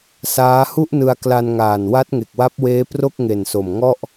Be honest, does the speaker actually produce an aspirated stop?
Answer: no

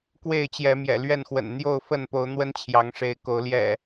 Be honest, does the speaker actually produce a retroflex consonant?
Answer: yes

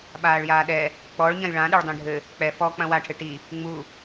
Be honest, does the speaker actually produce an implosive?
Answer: yes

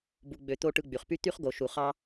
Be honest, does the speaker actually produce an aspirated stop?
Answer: no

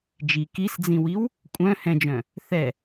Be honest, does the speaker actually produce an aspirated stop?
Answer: no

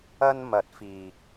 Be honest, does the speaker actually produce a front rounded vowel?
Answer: no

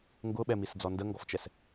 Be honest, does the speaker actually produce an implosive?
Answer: yes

